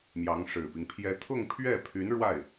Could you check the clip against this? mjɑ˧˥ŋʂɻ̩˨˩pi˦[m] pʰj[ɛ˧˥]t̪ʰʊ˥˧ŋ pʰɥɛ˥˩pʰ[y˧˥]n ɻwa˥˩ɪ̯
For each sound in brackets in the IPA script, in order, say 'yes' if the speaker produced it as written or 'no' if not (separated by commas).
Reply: no, yes, yes